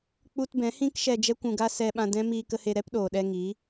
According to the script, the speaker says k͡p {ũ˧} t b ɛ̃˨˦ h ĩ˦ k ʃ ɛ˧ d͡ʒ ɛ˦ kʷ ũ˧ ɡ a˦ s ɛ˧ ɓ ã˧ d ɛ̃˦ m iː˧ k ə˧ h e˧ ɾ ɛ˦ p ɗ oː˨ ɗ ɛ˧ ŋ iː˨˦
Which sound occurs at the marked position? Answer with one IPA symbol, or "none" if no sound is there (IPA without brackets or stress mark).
u˧